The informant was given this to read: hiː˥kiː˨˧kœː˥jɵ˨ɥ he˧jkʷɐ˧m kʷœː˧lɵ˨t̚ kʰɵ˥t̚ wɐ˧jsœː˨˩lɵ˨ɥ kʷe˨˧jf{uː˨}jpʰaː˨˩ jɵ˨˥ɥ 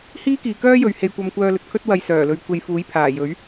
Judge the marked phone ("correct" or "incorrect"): incorrect